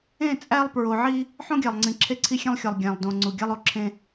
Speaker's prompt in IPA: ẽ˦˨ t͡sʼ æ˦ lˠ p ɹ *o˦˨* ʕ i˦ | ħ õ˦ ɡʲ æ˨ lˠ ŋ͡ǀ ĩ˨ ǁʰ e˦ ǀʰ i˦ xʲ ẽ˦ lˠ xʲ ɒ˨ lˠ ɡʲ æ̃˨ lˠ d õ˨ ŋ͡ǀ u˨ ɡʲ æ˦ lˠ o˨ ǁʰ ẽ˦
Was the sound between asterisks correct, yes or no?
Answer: no